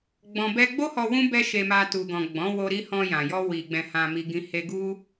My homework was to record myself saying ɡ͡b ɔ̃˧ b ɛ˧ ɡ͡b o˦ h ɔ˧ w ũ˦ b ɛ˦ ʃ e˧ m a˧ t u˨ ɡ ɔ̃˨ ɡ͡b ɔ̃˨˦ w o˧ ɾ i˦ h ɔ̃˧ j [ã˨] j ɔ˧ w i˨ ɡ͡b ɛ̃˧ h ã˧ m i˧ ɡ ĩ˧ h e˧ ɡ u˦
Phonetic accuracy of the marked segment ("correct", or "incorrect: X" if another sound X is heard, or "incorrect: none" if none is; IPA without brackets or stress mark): correct